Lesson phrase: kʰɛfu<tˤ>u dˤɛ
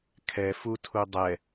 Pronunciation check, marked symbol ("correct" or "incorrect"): incorrect